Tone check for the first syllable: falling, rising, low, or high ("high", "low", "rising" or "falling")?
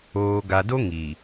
low